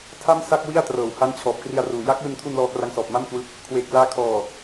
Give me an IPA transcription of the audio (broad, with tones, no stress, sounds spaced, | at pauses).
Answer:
tʰ a˥˩ m s a˥˩ k̚ w i˥˩ a̯ t r ɤː˩˦ w h a˦˥ n t͡ɕʰ ɔː˨˩ p̚ k r i˧ a̯ r uː˩˦ j a˦˥ k̚ l ɯ˧ ŋ tʰ u˧ n l ɔː˧ k r a˦˥ ŋ s ɔː˨˩ p̚ m a˥˩ m k w ɯ˦˥ k̚ | kʰ w e˨˩ k̚ l aː˧ kʰ ɔː˨˩